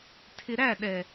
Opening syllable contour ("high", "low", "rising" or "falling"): low